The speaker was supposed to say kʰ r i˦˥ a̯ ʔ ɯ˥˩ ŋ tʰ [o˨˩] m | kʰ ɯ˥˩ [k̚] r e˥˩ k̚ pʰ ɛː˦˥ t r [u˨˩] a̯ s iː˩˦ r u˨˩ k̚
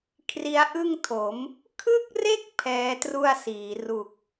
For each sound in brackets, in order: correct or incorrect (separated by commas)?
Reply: incorrect, correct, incorrect